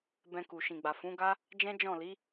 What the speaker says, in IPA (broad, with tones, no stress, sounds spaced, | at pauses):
b ɛ̃˧ k u˨ ʃ ĩ˨ ɡ͡b a˨ f ũ˨˦ ɡ a˦ | d͡ʒ ɛ̃˦ d͡ʒ ɔ̃˦˨ l i˨˦